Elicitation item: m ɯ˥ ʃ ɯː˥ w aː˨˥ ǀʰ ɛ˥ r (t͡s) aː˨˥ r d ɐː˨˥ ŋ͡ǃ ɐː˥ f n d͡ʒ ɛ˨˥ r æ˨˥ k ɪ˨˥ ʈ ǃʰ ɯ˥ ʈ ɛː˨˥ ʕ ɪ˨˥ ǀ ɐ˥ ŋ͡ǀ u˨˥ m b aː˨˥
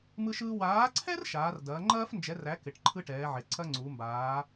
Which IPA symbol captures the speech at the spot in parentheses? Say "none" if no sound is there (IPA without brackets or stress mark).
ʃ